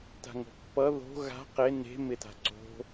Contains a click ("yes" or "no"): yes